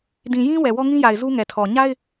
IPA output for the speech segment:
d ĩ˨ j ĩ˦ w ɛ˨ w ɔ˦ ŋ ĩ˦ j a˨ ɪ̯ z u˦ ŋ ɛ˨ tʰ ɔ˨ ɲ a˦ ɪ̯

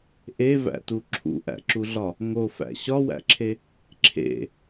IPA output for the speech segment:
ʔ e v æ̰ t u ǁʰ ṵ ʔ æ̰ ǁ u ɮ ɒ | ŋ o f æ̰ ɕ ɒ w æ̰ ǁʰ e | ǁʰ ḛ

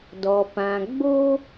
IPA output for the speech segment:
d ɔ˨ p ã˨ ɡ͡b o˦

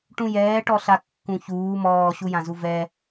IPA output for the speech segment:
ʈ ũ j ɛː ʈ ɔ ɬ a kː ũ ç uː m ɔː ɕ u j ã z u v ɛ

